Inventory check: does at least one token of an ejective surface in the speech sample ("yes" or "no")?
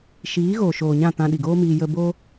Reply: no